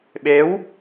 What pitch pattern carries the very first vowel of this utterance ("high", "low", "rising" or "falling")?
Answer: rising